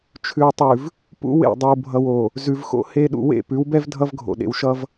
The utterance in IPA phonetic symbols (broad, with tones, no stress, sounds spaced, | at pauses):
t͡ʃʰ ʉ˨ w tˤ ʉ˨ v | p ṵ˦ w ḛ˦˨ dˤ ɨ˨ w bʱ ʌ˨ w o˨ | z ʉ˨ v x o̰˦ h e˦ ɗ ṵ˨ w ḛ˦˨ p ʉ˨˦ w b ɛ˦ v dʱ ʌ˦ v ɡʱ o̰˨ ɗ ḛ˨ w ʃ ʌ˦ v